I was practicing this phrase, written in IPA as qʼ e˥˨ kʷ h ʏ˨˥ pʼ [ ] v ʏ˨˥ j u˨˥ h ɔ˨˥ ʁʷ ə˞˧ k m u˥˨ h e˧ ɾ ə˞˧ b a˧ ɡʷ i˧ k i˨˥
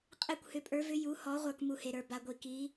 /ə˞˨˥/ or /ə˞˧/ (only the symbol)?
ə˞˨˥